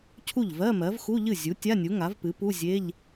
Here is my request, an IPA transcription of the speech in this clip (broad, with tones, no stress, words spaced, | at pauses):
cʰu˥˩ʎvɜ˧˥˧mɜ˩˥v xu˧˥˧ʎɨ˥˩ zʲu˩˥ tʲa˧˥˧nʲu˩˥ŋa˩˥vpɨ˩˥ pu˧˥˧zʲe˧˥˧ʎ